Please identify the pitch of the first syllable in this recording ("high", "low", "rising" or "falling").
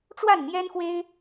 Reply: falling